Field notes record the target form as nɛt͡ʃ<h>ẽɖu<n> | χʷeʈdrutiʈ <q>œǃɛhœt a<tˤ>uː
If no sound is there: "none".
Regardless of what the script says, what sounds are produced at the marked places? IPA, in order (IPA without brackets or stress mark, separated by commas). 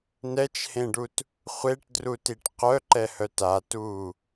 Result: h, t, q, t